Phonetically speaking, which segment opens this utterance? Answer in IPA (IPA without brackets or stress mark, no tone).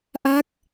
ʔ